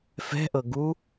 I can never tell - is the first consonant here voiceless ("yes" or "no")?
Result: yes